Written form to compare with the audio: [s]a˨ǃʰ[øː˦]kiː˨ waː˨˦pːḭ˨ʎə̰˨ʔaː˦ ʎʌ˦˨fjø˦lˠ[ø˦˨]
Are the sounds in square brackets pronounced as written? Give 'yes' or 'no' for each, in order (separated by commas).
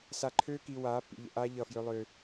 yes, yes, no